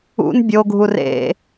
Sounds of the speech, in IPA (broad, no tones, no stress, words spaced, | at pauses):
ṵn bʲoɡʱu rḛ